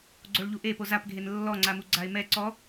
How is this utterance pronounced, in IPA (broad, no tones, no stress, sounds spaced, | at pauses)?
ɡ͡ǀ o ɭ ʎ u ʔ e p o z a p ɡʱ e n lː ɔ ŋ͡ǀ a m u ɡ͡ǀ a ɪ̯ m ɛ ǀ ɔ